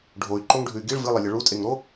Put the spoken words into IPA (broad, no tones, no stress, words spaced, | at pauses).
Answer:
ɖʱoy̯ǃoŋɖʱʉy̯ ɡiɭ vɨlˠelʲɐ ɭutʼeŋɾo